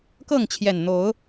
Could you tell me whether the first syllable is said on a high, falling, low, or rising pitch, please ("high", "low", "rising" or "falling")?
falling